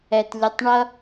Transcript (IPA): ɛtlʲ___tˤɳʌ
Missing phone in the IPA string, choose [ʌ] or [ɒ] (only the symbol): ʌ